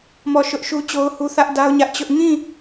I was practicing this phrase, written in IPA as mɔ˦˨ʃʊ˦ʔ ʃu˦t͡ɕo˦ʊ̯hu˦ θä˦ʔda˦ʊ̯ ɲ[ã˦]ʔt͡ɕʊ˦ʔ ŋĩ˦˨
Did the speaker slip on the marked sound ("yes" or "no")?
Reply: yes